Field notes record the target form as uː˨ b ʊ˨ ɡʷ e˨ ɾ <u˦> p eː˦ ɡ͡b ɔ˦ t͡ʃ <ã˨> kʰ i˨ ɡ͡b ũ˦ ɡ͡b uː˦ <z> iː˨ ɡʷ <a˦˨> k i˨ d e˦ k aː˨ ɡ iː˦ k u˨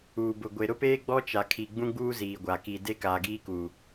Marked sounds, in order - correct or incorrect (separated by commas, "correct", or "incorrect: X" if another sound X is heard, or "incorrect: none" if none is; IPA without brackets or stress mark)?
incorrect: ʊ˦, incorrect: a˨, correct, incorrect: a˨